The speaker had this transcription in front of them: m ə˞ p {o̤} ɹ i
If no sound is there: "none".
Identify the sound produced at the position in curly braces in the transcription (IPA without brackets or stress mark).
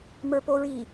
o